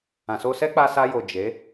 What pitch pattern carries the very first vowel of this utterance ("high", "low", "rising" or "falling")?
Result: low